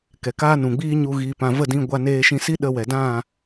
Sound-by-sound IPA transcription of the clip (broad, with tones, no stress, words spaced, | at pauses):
kɛ˨kaː˦nũ˨ɡ͡biː˦ ɲu˧ ɣiː˧pã˧ və˦˨dĩ˧ɡʷa˧ neː˧ʃĩ˧si˦ ɗə˧wɛ˨dã˦˨